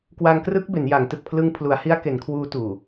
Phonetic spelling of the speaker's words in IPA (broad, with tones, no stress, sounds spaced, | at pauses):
k w a˧ ŋ k r ɯ˦˥ k̚ b e˩˦ n j a˩˦ ŋ t ɯ˨˩ k̚ pʰ l ɯ˧ ŋ pʰ l u˩˦ a̯ h i˦˥ a̯ k e˩˦ n kʰ w uː˦˥ t uː˨˩